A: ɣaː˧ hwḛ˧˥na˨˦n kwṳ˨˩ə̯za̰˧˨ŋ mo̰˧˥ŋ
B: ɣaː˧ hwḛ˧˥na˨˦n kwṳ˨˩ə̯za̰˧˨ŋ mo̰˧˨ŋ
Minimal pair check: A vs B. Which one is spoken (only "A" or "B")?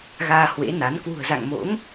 A